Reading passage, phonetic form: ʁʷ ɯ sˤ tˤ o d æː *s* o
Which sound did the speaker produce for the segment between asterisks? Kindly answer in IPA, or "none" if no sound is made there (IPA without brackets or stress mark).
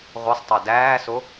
s